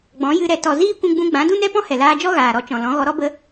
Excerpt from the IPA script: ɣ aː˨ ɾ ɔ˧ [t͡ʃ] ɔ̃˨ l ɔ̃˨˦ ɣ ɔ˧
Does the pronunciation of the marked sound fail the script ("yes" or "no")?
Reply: no